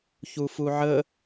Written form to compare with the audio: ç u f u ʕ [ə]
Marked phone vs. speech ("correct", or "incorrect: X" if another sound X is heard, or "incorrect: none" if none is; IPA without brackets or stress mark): correct